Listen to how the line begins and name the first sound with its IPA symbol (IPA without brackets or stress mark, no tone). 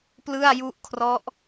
p